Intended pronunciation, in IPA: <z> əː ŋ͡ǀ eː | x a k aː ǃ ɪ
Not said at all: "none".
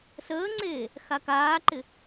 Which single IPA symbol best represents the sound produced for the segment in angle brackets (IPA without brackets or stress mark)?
s